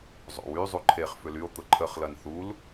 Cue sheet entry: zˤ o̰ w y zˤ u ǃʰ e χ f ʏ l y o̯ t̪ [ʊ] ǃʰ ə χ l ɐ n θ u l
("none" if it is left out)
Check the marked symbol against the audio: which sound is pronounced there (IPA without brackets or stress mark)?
ʊ